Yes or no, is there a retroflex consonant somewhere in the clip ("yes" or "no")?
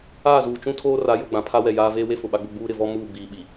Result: no